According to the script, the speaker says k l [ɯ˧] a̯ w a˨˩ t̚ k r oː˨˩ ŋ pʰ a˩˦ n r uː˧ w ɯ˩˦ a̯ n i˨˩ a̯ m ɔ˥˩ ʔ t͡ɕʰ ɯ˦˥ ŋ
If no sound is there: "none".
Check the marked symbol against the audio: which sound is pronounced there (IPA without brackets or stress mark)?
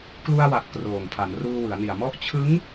u˧